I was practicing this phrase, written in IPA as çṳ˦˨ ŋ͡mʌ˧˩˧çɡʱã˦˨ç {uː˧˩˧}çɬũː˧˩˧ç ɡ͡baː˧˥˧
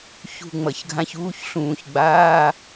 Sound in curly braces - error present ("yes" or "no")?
yes